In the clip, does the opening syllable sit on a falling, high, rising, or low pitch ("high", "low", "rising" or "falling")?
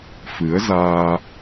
rising